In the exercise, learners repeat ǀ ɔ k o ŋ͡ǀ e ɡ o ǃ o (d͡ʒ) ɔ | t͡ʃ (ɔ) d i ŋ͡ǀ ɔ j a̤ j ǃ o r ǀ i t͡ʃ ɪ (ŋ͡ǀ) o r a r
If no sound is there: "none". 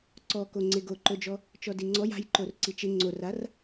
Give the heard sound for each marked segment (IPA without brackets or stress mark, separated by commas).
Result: d͡ʒ, ɔ, ŋ͡ǀ